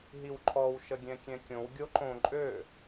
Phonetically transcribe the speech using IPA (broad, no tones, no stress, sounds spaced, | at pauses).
ɦ i w ǃʰ ɔ w ʃ ə ɡʲ ɛ̃ kʲ ɛ̃ kʲ õ w ɡʲ o ǃ õ ǃʼ ø